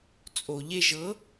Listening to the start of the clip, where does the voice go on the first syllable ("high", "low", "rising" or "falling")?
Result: low